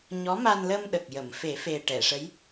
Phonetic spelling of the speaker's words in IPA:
ɲ ɔ˧˥ m a˧ n l ə˧ m ɗ ə˨˩ k̚ j ə˨˩˨ m f e˨˩˦ f e˨˩ ʈ ɛ˨˩˨ ʂ ə˧˥ j

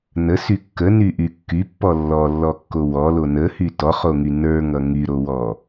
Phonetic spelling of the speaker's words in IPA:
n ə s y kː ə n y ʔ y kː y pː ɔ lː ɔ lː ɔ kː o w ɔ l o n ə h y t ɔ χ o ŋ y n ə˞ ŋ ʌ ŋ y ɾ o w ɔ

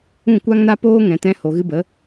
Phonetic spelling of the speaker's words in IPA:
ũ˦˨ kʷ a˦ ŋ n a˦ p oː˦ ŋ ɛ̃˨ t ɛ̃˧ h o˨ ɣ ɨ˧ b ə˨˦

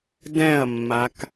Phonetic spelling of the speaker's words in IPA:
d ɛ̃ ɐ̯ mː a k

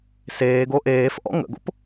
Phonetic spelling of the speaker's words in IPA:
s eː ɡ o ʔ eː f ʔ ɔ̰ ŋ ə̰ ɡ o̰ p

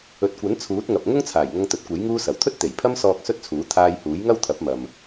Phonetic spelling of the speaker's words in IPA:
ɵ˨ t̚ kʷ ɐ˨˥ n t͡sʰ uː˨˥ t̚ ŋ ɐ˨ p̚ ŋ ʊ˥ ŋ t͡sʰ aː˨˩ j ŋ ɐ˧ ŋ t̪ ɵ˨˥ t̚ kʷ e˨˥ j ŋ uː˧ s ɐ˨˩ w t̪ʰ ɵ˥ t̚ t̪ e˨˩ j pʰ ɐ˧ m s ɔː˨ k̚ s ɵ˥ t̚ t͡sʰ uː˨˥ t̪ʰ aː˧ j h uː˨˥ j ŋ ɐ˥ w t̪ʰ ɐ˨˥ p̚ m ɐ˨ m

